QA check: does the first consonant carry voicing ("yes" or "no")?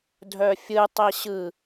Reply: yes